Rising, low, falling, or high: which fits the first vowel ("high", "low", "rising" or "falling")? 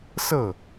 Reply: falling